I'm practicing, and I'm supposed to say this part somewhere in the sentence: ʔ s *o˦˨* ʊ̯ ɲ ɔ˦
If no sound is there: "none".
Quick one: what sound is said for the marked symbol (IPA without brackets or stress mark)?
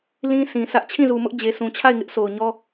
o˨